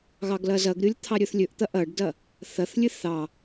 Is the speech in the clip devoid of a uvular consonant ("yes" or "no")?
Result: yes